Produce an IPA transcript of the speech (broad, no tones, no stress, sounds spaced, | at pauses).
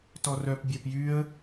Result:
t ɔ r œ p bʲ æ p j y ə̯